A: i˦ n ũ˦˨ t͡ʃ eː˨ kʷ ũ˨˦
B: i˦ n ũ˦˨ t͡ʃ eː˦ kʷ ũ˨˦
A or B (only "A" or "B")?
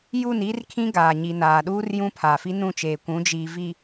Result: A